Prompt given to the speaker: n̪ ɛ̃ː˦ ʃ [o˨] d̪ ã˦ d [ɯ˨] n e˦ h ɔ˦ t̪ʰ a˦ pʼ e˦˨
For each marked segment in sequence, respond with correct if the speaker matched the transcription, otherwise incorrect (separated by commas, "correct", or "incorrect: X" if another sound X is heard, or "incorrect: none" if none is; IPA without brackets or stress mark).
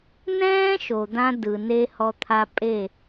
correct, correct